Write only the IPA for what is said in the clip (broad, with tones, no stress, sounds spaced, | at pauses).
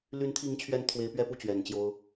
l y˧˥ n t̪ʰ i˧˥ ŋ t͡ɕʰ ɥ ɛ˧˥ n t̪ʰ w e˧˥ ɪ̯ p ɥ ɛ˥ p u˥˩ t͡ɕ ɥ ɛ˨˩ n t͡ɕ j o˥ ʊ̯